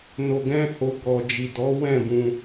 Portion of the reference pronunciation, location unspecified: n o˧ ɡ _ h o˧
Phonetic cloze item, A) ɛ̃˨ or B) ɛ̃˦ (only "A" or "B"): B